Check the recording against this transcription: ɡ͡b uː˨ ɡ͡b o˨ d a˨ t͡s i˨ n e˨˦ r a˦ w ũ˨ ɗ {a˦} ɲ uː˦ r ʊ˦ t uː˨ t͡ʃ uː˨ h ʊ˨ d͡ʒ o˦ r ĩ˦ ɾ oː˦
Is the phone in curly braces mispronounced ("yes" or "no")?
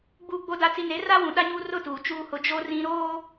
no